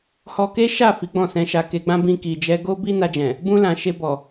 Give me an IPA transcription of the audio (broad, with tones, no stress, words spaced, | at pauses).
hɔ˧ke˦ʃa˦˨ fi˨˦ɡ͡bɔ̃˦˨sɛ̃˧ʃa˧ ke˧ɡ͡bã˦ bĩ˧ki˨d͡ʒɛ˧ ɡo˦bi˦ na˧d͡ʒɛ̃˨ | bũ˧lã˨ ʃe˧bɔ˨